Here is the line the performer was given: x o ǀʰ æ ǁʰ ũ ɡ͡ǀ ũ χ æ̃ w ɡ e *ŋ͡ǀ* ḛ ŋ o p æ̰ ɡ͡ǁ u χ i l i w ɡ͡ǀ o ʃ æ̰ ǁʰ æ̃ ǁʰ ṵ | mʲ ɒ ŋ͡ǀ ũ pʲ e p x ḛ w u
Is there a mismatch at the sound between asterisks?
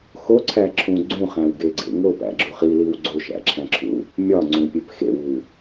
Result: yes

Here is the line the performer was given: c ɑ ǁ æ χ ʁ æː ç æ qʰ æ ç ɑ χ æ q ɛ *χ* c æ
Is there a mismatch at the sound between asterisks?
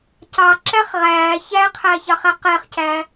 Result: no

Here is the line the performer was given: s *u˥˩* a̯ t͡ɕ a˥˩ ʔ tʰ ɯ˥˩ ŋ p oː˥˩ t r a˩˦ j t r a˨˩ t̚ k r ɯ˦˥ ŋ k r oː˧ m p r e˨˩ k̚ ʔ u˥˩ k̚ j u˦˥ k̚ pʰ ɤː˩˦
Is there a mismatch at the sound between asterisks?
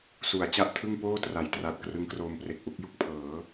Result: yes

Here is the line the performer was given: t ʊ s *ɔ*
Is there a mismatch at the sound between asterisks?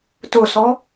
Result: no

